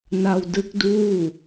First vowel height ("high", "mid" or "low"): low